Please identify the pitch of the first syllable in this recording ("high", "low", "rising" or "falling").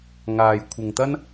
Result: low